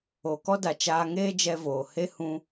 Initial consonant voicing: voiceless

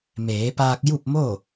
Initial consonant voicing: voiced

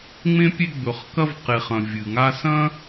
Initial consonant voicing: voiced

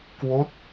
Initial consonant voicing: voiceless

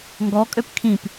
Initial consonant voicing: voiced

